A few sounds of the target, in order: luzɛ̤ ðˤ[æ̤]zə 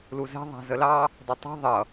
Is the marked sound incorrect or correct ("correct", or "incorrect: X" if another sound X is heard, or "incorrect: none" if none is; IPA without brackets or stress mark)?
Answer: correct